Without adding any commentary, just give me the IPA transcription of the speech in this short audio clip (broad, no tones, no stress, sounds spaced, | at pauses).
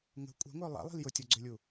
ŋ ə̤ kʷʼ ɛ̤ ŋʷ œ lˠ a̰ lˠ i̤ l j ʊ tʲ o ɡ͡ǀ ø lʲ u